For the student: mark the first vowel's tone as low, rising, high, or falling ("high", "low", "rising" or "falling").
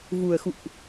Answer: low